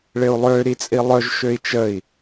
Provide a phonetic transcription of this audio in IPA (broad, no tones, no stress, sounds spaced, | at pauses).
ɭ ɪ u̯ lˠ ø ɾ i t͡sʼ i lˠ œ ʒ ʃ ø i̯ t͡ʃ ə i̯